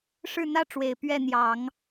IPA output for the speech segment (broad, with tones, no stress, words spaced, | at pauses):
ʂɻ̩˥˩n̪ä˥ʈ͡ʂwe˨˩ɪ̯ pɥɛ˥˩ n̪jɑ˨˩˦ŋ